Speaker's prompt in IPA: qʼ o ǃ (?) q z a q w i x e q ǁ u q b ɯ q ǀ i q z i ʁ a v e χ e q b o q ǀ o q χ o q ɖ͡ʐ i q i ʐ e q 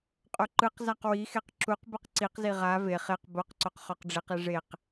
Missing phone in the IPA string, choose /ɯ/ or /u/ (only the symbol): ɯ